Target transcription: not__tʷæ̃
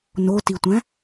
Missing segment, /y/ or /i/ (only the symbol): i